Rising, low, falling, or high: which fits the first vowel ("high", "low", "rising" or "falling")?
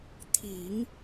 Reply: low